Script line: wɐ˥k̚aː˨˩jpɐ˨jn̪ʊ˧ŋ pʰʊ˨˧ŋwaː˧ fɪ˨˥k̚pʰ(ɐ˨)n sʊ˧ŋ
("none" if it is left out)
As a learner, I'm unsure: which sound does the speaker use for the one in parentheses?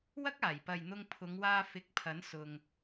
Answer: ɐ˨˥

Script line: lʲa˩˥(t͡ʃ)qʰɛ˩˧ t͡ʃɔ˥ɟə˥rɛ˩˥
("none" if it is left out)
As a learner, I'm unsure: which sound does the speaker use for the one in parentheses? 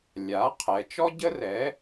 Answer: none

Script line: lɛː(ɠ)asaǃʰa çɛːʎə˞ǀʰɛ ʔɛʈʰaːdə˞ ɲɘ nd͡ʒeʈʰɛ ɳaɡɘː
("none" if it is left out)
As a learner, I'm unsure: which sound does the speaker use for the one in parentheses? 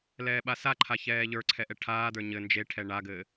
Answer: ɓ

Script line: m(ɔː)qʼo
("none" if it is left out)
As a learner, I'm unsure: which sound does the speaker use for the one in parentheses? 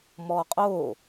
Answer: ɔ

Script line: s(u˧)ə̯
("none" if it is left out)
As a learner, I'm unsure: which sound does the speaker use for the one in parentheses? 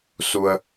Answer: u˧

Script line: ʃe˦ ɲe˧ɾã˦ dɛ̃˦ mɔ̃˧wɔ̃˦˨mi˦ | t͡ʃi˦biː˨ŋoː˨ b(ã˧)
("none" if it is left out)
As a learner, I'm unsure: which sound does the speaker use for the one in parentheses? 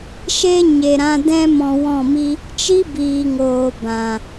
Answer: ã˨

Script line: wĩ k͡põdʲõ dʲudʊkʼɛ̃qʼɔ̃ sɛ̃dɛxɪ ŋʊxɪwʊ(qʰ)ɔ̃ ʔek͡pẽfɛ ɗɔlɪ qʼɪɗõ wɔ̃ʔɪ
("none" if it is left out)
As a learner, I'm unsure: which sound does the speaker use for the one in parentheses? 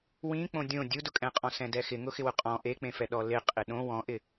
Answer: qʼ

